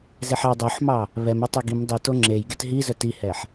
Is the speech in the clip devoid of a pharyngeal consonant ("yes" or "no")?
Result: no